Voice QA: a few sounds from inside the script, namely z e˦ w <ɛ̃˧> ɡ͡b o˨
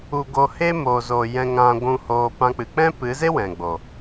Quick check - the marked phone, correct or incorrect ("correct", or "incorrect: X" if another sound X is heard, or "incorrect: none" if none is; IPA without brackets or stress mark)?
incorrect: ɛ̃˨